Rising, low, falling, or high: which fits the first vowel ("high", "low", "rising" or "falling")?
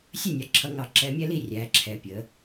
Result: falling